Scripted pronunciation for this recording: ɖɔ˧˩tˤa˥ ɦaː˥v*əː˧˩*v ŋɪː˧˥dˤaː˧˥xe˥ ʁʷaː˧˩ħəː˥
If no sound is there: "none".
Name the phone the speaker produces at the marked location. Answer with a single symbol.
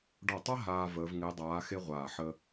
əː˧˥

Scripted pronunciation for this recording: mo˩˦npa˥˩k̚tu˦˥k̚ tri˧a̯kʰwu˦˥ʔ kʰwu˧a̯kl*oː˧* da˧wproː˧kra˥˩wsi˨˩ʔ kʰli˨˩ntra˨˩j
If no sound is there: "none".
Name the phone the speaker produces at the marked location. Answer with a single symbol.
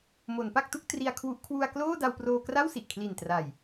oː˥˩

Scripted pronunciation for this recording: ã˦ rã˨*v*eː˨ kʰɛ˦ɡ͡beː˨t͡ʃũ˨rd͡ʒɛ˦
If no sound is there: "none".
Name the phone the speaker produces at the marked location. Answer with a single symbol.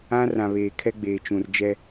β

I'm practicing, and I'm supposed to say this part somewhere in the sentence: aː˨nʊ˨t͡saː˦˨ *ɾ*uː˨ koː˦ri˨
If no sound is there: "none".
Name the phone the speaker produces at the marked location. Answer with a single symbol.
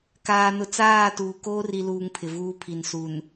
t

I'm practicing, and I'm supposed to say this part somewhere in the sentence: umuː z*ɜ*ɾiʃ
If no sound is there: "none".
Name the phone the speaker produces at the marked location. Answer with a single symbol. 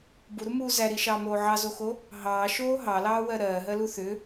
æ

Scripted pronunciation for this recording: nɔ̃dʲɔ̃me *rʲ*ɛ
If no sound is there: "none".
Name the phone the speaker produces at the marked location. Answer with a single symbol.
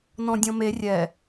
rʲ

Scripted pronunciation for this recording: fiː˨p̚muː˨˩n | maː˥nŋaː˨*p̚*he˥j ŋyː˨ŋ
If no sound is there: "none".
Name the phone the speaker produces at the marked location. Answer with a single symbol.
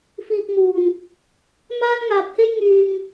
p̚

